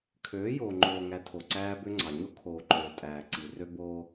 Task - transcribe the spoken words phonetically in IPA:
kʰ øː˨˦ j oː˨ ŋ͡ǃ oː˨ ŋ æ˨ tʰ o˨ ǀ æː˦ b ø˦ ŋ͡ǀ ɑ˨ ɲ o˦ kʰ oː˨ ǃ øː˨ tʼ æː˨ ǀ i˨ r ø˦ b o˦

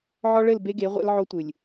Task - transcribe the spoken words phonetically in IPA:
ʕ ɔ˦ ɭ ɘ˦˨ l b e˦ ɡ e˨˦ ʁʷ ḛ˦ l ʕ o˦ tʷ ɨ˨ lʲ

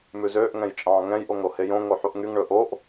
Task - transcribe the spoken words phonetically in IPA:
m ʉ z øː ʔ ŋ ɛ̃ j t͡ʃʼ ɑ̃ː ŋ ɛ̃ j ʔ o ŋ ɾ o h e j õ ŋ o ħ u ʔ ŋ y ŋ ɳ ɵ ʔ o ʔ

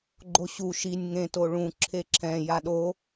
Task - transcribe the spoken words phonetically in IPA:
ɡ͡ǃ o ɕ u ʃ i nʲ ŋ ẽ t o ɭ ũ ǁʰ e ǁʰ ɛ̃ j a ɗ o

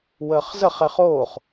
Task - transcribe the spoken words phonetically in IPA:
w əː χ z ə χ ɛ χ oː χ

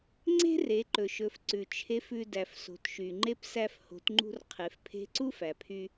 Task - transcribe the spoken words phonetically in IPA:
ŋ͡ǀ e̤˥ r e˩˧ ǃ ɵ˩ ʃ ɵ˩˧ f ǀ ʉ˩ t͡ʃʰ e˧˥ f ʉ˧ d æ˩ f s o̤˩ t ʃ y˩ ŋ͡ǃ e˧˥ p s æ˧ f h o̤˩˧ t ŋ͡ǃ ṳ˧ r qʰ e˩˧ f pʰ e̤˧˥ ǀ u˥ f æ˩ pʰ y˧

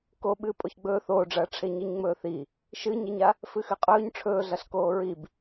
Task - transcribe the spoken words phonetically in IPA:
k o ɓ ɨː pʼ o ç ɡ͡b ɵː θ oː ɖ͡ʐ ɐː ʈ͡ʂʰ e ɲ i ɲ ŋ͡m ɵː θ i | ʃ ɨ ɲ e ɲ a | f ɨ x ɨ qʼ ɵː ɲ ʈ͡ʂʰ ɵː ɮ ɐ ɬ k oː ɹ i b

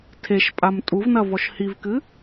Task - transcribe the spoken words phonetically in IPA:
tʰ e ʃ pʼ a m tʼ u v n ɐ v ɔ ʃ h i v k ɨ

